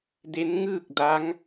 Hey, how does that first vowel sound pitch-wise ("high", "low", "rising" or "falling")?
rising